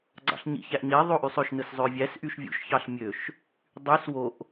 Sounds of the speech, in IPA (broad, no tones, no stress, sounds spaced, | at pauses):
ɡ͡ǀ ɑ̰ ɬ ɲ ḭ ç æ ʔ ɲ e ðˤ o ʔ y sˤ ø ʃ n ɯ s zˤ ø vʲ æ s ʔ y ʃ vʲ ṵ ʃ ç ɑ ɬ mʲ ø ʃ | dˤ y s w o ʔ